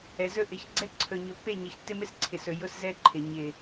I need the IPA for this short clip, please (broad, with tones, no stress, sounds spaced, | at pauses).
ɛ˨ z ɵ˦ ʔ ɪ˨˦ ç ɡ͡ǀ ɛ˦ ǀʰ ɵ˨ ɲ ɵ˨ pː e˦˨ ɲ ɪ˨ ç tː ɪ˦ m ɪ˦ s ǀʰ ɪ˨ s ɵ˨ j ʊ˦ s z ɛ˦ ǃʰ ɪ˨ ɲ ɪ˨